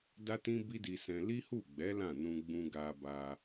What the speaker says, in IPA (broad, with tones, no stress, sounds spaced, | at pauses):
d a˦ t ĩ˦ b i˦ d i˧ s ɛ̃˧ l i˦ h u˦˨ ɡ͡b ɛ˨˦ l ã˦˨ n ũ˧ ɡ͡b ũ˧ ɡ a˧ b a˧